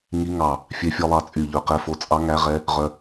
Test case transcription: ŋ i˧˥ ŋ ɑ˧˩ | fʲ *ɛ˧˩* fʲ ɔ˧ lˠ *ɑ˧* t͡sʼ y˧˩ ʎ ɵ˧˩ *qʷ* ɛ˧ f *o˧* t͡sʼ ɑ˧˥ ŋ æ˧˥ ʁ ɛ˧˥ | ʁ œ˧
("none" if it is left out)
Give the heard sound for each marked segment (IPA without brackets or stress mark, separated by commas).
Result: ɛ˧, ɑ˧, q, o˧